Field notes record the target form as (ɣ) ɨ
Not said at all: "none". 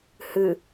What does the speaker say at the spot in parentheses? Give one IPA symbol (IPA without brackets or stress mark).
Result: h